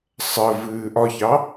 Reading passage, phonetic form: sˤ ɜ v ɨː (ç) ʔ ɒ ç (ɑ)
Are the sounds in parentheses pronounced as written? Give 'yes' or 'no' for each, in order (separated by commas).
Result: no, yes